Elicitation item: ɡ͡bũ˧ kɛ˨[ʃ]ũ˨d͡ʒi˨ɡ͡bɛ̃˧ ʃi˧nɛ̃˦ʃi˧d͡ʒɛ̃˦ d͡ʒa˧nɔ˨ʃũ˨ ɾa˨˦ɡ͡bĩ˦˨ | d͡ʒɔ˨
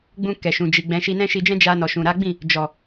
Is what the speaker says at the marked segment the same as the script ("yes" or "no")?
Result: yes